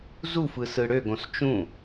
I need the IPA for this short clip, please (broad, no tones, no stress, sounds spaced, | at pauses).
z u f ɯ s ɯ ɽ ø ɡ õ s t͡ʃ ũ